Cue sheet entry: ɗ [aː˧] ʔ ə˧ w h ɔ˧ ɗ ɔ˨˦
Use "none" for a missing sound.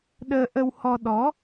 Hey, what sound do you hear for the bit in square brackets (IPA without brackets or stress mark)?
əː˧